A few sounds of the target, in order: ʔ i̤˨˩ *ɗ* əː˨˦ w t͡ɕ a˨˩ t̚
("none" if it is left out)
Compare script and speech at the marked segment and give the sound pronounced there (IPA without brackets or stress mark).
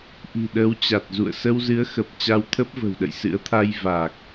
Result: ɗ